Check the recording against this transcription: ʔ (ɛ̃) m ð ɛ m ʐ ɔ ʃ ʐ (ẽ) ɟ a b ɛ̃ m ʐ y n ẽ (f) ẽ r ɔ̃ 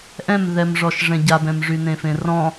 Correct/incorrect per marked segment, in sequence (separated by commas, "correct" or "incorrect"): correct, incorrect, correct